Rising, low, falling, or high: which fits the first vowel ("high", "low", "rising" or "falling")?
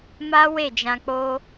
high